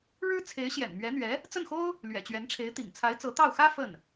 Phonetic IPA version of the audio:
ɻ ɻ̩˥ t͡sʰ e˧˥ ɪ̯ ɕ j ɛ̰˨˩ n m ɥ ɛ˧˥ n̪ ɥ ɛ˧˥ | t͡s ə˥˩ n x o˥ ʊ̯ | l ɥ ɛ̰˨˩ t͡ɕ ɥ ɛ˧˥ n ʈ͡ʂʰ e˧˥ ɪ̯ t̪ ḭ˨˩ ŋ t͡sʰ a˧˥ ɪ̯ t͡s ɤ˧˥ t̪ ɑ˥˩ ʊ̯ x ä˥ f ə˥˩ n

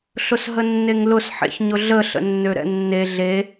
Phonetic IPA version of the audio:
ɬ ʊ s ɦ ə nː e ŋ l ʊ s ħ ḛ ç ɲ ʊ ɮ ə ɬ ə̰ nː ø ɾ ɛ̰ nː e ɮ e

